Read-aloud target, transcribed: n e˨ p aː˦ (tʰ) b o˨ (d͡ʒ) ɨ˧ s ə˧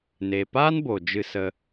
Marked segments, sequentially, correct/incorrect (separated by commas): incorrect, correct